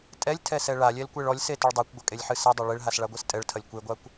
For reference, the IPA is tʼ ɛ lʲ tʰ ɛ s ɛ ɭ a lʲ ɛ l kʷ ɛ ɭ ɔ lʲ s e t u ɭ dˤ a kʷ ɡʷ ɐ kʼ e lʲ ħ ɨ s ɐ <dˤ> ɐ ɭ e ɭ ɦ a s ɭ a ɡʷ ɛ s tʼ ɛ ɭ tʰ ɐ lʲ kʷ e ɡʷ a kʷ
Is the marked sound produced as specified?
yes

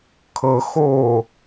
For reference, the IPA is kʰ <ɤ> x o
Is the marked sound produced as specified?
yes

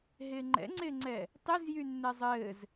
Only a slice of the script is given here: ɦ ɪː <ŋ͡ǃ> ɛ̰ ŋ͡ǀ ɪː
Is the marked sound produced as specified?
yes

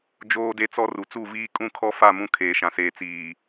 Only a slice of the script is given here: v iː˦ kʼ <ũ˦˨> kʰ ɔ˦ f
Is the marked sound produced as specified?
yes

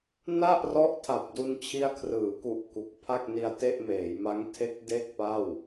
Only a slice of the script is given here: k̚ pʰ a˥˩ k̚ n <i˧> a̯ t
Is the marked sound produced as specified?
yes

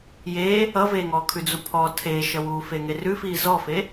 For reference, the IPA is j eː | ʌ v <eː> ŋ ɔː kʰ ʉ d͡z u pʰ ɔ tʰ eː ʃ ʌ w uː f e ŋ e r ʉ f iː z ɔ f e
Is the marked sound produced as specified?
yes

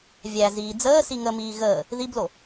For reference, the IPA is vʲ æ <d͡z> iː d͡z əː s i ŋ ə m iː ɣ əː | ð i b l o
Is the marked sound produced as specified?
no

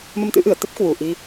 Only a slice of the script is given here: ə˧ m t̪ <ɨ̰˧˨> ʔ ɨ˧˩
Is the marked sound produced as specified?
no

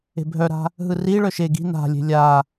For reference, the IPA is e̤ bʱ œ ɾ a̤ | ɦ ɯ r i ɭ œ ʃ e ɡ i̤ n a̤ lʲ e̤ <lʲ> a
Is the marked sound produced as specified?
yes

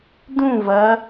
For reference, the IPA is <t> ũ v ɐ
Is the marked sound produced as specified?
no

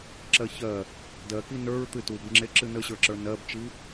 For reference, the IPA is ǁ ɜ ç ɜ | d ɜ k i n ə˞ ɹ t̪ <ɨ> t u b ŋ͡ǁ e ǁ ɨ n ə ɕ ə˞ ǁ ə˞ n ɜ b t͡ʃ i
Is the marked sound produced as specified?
yes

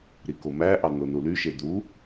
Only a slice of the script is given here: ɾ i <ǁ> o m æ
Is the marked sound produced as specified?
no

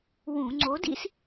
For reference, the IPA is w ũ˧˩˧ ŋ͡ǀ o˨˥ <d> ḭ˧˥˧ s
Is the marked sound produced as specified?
yes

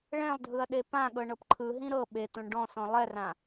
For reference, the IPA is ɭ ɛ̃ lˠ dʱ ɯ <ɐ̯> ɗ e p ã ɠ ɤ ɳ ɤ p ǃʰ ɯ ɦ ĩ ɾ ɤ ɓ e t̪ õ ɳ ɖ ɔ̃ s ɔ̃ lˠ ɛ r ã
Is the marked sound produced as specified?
yes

